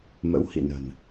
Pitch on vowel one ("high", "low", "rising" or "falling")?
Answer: rising